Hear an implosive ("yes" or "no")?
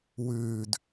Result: no